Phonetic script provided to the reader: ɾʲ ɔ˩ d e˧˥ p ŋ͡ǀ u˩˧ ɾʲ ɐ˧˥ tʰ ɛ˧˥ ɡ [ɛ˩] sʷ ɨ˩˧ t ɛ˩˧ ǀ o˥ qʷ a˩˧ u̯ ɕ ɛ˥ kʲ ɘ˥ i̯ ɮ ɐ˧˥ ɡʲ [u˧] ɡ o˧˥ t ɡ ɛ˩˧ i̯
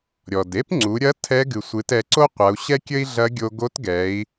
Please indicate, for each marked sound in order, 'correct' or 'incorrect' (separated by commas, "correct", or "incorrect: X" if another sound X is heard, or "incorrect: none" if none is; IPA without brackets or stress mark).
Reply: incorrect: ɨ˩, incorrect: o˧